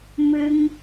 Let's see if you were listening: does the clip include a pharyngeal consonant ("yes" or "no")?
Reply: no